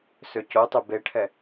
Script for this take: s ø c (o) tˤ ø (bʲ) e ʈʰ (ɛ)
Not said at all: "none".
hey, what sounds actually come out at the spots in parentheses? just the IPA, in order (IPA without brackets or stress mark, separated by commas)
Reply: o, b, ɛ